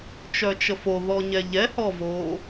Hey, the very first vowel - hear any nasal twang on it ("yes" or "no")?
no